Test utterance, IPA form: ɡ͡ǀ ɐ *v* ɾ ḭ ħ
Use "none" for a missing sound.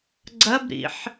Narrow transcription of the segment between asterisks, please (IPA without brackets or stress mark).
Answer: b